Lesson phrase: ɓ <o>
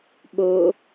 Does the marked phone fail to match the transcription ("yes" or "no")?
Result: no